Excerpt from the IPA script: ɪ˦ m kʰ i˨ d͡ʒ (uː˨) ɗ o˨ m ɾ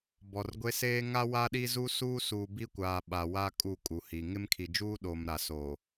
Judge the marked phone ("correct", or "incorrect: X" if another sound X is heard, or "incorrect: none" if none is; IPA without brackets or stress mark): incorrect: uː˦